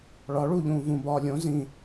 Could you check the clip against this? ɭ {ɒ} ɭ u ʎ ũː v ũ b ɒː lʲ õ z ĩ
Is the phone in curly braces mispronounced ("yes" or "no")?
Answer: no